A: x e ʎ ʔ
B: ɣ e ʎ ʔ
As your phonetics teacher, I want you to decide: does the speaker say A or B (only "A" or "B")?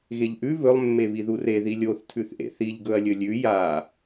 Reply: B